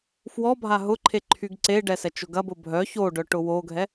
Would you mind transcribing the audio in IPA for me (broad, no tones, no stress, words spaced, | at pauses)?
fwɔbʱa ɦʊǃʰeǃʰyɡ ǀe ɖɛsɛt͡ʃʊɡɐ bʊbʱœ çoɖœʈʊ woɡʱɛ